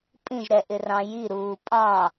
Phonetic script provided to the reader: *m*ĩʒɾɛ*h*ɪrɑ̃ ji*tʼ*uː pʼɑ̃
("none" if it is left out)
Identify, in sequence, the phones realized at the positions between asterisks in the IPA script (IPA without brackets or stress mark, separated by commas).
pʼ, ʔ, ɾ